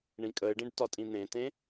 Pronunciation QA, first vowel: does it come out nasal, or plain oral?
nasal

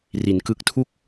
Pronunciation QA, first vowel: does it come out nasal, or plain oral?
oral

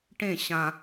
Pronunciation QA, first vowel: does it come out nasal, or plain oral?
nasal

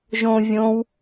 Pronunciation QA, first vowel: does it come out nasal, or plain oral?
nasal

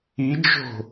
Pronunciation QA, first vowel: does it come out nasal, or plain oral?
oral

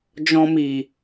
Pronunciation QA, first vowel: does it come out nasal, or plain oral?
nasal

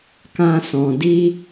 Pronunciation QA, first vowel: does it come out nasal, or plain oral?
nasal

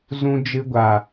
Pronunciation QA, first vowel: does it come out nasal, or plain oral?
nasal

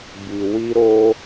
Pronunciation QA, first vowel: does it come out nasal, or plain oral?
oral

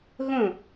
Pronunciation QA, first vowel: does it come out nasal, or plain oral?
nasal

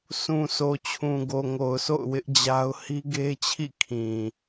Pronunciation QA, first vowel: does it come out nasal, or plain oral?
nasal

